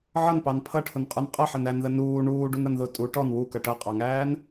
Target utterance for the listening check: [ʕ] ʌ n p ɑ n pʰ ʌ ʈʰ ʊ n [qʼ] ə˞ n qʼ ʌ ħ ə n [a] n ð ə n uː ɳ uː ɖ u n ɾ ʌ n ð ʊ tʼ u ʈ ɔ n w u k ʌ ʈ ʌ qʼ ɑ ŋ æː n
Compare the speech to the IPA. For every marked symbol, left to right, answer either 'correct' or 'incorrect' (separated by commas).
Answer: correct, correct, incorrect